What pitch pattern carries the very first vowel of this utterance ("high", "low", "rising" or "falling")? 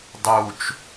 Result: low